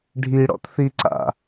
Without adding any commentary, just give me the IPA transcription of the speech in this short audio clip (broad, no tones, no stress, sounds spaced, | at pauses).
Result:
ɖʱ i ɽ ɔ̰ t θ i ǀ a̰